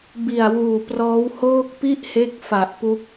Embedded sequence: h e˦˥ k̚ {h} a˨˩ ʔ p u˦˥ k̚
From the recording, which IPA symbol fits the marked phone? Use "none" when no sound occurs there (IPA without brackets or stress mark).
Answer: f